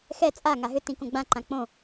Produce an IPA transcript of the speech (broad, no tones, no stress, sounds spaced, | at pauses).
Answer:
x ɛ t͡sʼ a ŋ a ɦ ʏ t ĩ k õ ɡ͡b ã ǃ ã k͡p õ